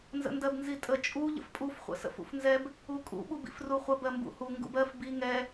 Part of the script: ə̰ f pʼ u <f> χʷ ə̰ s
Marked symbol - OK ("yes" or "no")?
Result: yes